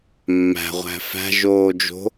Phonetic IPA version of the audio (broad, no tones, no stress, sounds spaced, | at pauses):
mː æ̤ ʁʷ æ̤ f æ̤ ʒ oː d͡ʒ o̤